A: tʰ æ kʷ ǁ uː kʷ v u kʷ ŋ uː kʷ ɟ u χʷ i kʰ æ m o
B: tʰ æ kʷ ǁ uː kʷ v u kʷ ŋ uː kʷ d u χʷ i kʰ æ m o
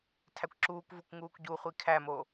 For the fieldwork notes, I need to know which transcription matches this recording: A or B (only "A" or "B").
A